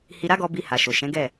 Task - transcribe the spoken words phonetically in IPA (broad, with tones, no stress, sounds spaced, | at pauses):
h i˧ ɾ a˦ ɡ ɔ˧ b i˧ h a˨ ʃ o˨ ʃ ɛ̃˨˦ ɡ ɛ˦˨